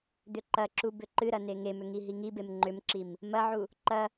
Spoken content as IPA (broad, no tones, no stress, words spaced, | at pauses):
d̪ʏǃɐǁu bʏǃɨɾɐ neŋemʏ ŋiɦiŋibem ŋ͡ǃʏmǁim | mɐʕu | ǃɐ